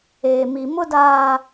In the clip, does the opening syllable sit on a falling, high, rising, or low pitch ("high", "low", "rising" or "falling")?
low